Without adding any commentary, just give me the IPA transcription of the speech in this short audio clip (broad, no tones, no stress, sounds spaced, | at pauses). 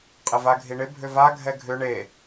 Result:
qʼ ɪ v a ɡʱ i ɳ ɪ bʱ ʏ v a ɡʱ ɛ ɡʱ ʏ ɳ e